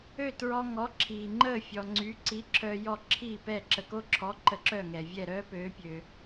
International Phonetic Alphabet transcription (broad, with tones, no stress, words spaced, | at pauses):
ø˥˩ tɹɔ˧ ŋɔ˩˥ǁʰiː˩ŋ͡ǃəː˥˩ fʲɔ˩ŋ͡ǀy˩˥ ǀi˩˥ ǁʰœː˧jɔ˥˩ǁʰiː˥˩pɛ˥˩ ǁə˩ko˧ǁʰɔ˩˥ ǃə˧ǁœ˥˩ŋɛ˩vʲɛ˥˩ ɾœː˥pøː˩˥pʲø˩